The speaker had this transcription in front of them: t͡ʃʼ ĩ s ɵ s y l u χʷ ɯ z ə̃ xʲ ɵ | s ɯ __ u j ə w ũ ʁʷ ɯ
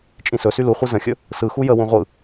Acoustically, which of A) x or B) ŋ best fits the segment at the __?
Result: A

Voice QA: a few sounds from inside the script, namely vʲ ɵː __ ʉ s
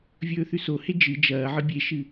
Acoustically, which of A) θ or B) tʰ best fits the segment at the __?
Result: A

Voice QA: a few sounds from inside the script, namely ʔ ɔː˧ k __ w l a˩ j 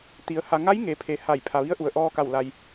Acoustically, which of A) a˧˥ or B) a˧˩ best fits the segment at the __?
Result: B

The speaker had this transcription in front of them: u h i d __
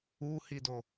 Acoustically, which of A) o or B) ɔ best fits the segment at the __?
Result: A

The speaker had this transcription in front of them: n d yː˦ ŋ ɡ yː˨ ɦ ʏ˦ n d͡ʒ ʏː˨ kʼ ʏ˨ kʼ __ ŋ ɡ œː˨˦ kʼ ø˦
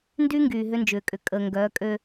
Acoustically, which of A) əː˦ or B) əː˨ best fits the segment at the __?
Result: B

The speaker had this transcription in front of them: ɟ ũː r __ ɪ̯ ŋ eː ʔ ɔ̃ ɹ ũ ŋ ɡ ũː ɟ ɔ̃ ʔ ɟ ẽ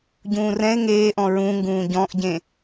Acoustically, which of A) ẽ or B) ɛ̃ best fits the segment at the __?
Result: B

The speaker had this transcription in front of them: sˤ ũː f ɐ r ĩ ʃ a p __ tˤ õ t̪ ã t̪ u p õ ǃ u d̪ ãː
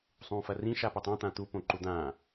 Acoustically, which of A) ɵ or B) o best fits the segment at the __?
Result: A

